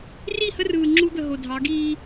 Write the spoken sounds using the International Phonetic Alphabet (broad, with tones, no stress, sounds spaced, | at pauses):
r i˦˨ h ə˦ r ɯː˨ ŋ͡ǁ u˦ d̪ ə˨ ɦ o˨ dʱ ɑ˨˦ ɡ iː˦